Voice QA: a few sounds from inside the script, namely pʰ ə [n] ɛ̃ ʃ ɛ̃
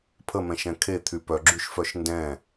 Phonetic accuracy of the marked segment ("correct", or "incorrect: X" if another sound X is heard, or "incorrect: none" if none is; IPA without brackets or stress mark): incorrect: m